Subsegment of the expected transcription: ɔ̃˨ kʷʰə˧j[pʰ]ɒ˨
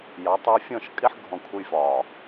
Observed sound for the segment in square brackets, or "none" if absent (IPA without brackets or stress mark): f